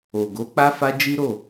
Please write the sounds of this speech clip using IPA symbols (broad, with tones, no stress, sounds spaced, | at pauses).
o˨ ɡ o˨˦ k͡p a˦ f a˦ d͡ʒ i˦ ɾ o˦˨